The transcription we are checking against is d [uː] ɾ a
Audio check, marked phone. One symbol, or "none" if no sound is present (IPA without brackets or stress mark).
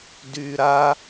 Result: yː